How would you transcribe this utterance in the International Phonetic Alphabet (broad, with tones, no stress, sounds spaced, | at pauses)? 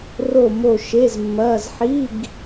r o˦˨ m o˦˨ ʃ e˧˥˧ z mː ɐː˧˥˧ z ħ i˧˥˧ ɡ